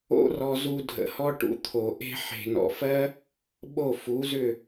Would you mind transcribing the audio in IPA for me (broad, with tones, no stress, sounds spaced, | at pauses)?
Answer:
o̰˦ r ɔ˧ z u˧ dʱ ə̰˨ h ɔ˦ ʈ ṵ˨˦ t̪ʰ o˨ ʔ e̤˦ ħ e̤˨ n ɔ̰˨ f ɜ˦ | ɓ o˦˨ f u˨˦ z ʏ˦˨